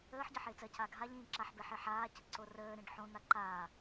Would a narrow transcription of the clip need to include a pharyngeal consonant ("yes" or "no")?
yes